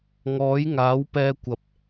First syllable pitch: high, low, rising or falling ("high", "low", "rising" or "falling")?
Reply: rising